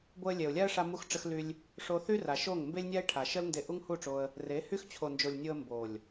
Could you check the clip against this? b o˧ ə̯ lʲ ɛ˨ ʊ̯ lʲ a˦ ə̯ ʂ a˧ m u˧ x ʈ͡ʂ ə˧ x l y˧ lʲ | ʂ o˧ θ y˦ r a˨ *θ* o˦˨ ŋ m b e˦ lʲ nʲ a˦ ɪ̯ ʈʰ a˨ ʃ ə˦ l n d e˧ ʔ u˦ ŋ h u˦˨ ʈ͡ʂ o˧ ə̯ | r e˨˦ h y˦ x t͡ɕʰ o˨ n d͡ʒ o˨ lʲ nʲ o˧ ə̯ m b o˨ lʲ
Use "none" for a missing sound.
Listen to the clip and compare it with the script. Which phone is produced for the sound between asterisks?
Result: ʃ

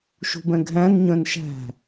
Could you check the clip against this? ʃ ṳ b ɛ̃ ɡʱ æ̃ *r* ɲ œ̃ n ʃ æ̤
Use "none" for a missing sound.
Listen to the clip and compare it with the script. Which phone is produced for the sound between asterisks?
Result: n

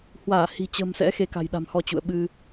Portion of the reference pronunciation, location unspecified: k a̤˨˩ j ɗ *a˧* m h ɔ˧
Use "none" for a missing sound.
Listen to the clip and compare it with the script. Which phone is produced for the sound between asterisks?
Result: a̤˨˩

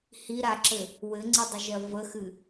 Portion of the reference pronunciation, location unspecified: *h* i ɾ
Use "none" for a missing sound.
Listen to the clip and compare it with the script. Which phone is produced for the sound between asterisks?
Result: h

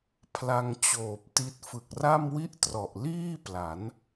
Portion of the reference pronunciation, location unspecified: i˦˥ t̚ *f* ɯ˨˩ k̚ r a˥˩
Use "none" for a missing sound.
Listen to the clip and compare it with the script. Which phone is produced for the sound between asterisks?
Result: f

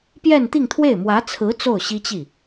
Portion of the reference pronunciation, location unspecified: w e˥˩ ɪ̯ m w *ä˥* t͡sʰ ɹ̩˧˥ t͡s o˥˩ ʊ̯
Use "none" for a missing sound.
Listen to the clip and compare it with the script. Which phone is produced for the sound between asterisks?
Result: ä˧˥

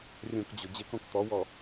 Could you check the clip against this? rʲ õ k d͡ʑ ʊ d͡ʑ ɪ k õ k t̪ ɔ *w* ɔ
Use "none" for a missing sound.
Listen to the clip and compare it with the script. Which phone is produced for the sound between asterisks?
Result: w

